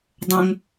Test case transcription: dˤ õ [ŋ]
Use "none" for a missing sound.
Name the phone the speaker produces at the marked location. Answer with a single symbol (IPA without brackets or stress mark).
ŋ